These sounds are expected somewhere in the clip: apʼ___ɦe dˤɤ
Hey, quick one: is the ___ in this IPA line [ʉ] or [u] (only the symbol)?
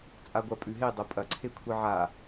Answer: ʉ